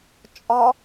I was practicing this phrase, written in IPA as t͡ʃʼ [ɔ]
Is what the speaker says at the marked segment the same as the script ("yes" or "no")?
yes